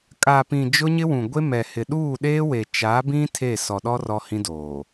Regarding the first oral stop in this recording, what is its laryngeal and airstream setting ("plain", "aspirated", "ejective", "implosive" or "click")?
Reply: ejective